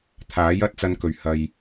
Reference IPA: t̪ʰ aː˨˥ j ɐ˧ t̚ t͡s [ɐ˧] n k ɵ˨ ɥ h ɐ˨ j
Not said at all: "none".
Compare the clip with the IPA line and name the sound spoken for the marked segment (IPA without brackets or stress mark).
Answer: ɐ˧